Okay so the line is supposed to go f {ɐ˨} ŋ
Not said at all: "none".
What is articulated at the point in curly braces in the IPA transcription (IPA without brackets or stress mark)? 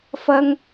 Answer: ɐ˥